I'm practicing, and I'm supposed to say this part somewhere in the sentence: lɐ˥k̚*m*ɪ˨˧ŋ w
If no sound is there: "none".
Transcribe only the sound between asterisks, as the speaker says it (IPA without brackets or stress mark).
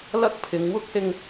pʰ